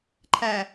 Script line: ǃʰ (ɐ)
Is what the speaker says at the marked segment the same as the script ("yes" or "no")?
no